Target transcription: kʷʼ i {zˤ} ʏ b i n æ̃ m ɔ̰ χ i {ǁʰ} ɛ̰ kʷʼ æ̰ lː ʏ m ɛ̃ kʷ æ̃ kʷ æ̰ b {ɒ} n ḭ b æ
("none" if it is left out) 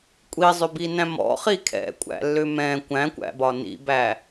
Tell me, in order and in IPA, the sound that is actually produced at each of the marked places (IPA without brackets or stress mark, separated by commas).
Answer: zˤ, kʰ, ɒ